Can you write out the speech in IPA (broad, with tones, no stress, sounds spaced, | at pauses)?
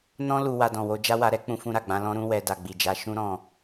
n ɔ̃˦ l u˧ w a˧ d ɔ̃˨ w o˧ d͡ʒ a˦ w a˧ ɾ ɛ˦ k͡p ũ˧ f ũ˧ ɾ a˨ ɡ͡b ã˨˦ l ɔ̃˦ ɾ ũ˦ w ɛ˧ d a˨ ɡ͡b i˨ d͡ʒ a˨˦ ʃ ũ˦ ɾ ɔ̃˦˨